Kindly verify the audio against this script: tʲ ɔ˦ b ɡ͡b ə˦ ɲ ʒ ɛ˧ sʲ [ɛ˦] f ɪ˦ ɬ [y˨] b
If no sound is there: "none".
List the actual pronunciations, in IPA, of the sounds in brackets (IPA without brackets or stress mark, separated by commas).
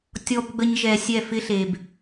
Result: ɛ˦˨, e˨